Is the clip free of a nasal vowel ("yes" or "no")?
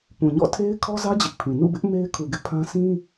no